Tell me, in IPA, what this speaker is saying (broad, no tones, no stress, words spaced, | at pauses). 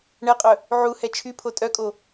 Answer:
ɳɛqʼœ | ʕu hɛt͡ʃʰypʰo tʼœkʼo